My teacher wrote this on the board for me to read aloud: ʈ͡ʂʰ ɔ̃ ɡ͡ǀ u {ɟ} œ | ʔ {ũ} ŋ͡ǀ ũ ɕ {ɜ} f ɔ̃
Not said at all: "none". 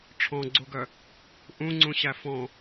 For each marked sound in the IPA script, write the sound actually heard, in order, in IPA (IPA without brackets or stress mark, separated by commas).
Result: ɡ, ũ, æ